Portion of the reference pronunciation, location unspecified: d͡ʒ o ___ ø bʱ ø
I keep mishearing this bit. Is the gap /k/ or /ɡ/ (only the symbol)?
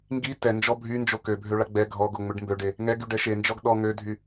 k